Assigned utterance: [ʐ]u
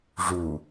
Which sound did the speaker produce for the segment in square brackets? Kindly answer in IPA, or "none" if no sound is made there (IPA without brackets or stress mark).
ʐ